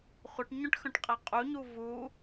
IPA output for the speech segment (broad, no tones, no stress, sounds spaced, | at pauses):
χʷ ə ʈ ɲ œ̃ ʈ x œ̃ ʈ qʼ æ qʼ u ɲ u v u